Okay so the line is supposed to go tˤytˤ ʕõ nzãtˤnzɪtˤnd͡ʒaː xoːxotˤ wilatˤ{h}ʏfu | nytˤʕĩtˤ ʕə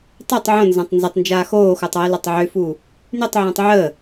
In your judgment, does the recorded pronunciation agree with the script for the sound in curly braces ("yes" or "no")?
no